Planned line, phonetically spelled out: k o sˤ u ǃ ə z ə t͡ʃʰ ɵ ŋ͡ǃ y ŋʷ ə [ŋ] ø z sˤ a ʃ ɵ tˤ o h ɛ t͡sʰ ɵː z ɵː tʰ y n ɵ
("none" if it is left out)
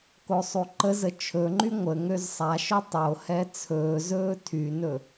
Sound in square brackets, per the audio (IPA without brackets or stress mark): ŋ